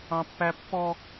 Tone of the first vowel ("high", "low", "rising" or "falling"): high